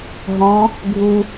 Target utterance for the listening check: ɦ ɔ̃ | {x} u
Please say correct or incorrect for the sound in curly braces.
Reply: incorrect